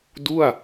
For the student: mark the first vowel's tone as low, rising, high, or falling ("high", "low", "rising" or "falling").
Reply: falling